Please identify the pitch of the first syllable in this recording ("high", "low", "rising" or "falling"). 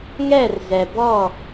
falling